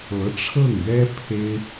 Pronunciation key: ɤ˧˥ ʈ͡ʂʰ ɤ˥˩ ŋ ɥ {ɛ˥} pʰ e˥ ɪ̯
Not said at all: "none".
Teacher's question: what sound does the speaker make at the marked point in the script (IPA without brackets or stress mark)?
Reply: ɛ˥